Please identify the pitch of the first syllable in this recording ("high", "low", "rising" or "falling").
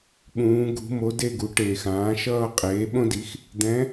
rising